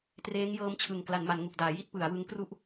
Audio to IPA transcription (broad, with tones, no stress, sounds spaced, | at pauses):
t r eː˦˥ ŋ j ɤː˦˥ m t͡ɕʰ ɯ˨˩ ŋ k l a˩˦ n m a˩˦ n ŋ u˨˩ k̚ d aː˩˦ j i˥˩ t̚ p ɯ˩˦ a̯ w ɯ˦˥ ŋ k r u˥˩ ʔ